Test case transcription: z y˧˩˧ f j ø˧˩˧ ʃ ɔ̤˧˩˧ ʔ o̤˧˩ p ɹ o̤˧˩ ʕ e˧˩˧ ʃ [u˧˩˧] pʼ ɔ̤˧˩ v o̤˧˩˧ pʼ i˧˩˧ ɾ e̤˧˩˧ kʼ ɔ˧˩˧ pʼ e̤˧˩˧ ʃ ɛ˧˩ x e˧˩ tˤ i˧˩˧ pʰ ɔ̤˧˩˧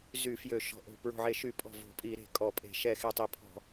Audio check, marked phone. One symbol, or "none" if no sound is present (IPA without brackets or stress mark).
y˧˩˧